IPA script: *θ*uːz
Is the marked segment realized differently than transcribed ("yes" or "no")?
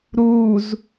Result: yes